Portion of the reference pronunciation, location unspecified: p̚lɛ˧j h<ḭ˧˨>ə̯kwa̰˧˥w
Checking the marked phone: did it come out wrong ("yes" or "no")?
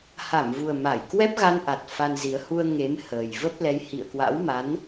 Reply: no